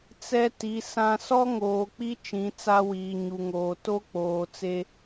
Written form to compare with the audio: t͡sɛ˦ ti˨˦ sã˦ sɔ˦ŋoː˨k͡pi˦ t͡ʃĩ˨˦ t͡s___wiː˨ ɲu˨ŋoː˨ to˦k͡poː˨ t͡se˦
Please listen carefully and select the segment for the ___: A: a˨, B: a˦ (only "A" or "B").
B